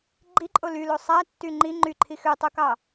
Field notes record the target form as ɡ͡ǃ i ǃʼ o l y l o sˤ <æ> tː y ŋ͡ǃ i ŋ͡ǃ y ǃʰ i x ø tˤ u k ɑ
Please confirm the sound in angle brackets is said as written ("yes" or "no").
yes